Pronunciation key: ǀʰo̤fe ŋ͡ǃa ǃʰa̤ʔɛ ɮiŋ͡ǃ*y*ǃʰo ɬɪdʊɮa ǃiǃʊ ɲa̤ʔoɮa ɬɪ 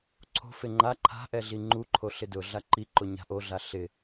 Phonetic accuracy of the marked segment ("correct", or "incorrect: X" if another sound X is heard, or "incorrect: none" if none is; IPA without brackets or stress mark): incorrect: u